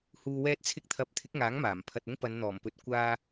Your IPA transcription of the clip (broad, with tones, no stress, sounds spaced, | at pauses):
h uː˨ w ɛː˧ t̚ t͡sʰ ɪ˧ k̚ t̪ʰ ɐ˨˥ p̚ t̪ʰ ɪ˨˥ k̚ ŋ aː˨˥ ŋ m aː˨˩ m pʰ ɐ˧ t̚ ʊ˥ ŋ p ɐ˨˧ n n̪ ɔː˨˩ m p ɵ˨˥ t̚ kʷ aː˧